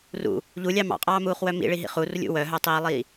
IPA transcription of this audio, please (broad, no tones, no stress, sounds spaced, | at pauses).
r ṵ | ʎ u lʲ ɑ m ɑ̰ qʼ ɑː m uː χ w œ m ḭ ɭ i ɦ ḭ χ u r lʲ ṵ w œ ɦ œ tˤ iː lˠ iː